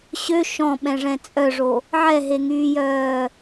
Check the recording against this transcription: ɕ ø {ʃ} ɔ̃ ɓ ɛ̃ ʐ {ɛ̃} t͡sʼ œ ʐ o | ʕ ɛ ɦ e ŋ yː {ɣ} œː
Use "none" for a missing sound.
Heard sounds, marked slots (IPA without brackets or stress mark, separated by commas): ʃ, ɛ̃, j